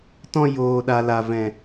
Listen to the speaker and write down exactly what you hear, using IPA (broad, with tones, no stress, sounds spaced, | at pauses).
t ɔ̃˧ j oː˨ ɗ a˨ l a˨ v ɛ̃˨